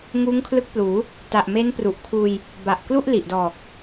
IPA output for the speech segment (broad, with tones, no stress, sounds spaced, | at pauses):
ŋ uː˦˥ ŋ kʰ l ɯ˦˥ k̚ p l uː˩˦ | t a˨˩ ʔ m e˦˥ n p r u˨˩ ʔ kʰ uː˧ j | b a˨˩ ʔ k l u˥˩ ʔ l i˨˩ ʔ d ɔː˨˩ k̚